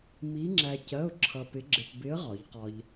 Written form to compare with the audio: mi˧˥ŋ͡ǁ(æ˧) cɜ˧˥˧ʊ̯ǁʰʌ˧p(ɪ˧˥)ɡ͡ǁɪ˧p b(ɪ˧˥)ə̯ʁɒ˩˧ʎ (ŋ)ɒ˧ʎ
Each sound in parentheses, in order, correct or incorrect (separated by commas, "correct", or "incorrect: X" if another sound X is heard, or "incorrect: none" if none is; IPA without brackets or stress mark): correct, correct, correct, incorrect: q